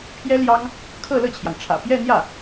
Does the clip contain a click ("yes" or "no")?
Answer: no